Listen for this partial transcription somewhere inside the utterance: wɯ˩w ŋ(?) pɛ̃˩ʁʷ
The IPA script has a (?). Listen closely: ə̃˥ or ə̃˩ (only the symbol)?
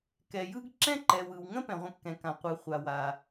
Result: ə̃˥